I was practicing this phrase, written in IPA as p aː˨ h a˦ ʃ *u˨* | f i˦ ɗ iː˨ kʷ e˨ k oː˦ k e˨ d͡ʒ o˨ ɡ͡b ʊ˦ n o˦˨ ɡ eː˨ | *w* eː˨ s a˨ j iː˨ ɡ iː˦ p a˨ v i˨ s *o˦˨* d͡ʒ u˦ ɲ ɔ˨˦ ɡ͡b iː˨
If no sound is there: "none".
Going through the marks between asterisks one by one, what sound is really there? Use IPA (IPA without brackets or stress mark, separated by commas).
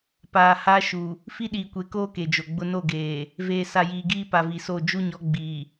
u˨, v, o˦˨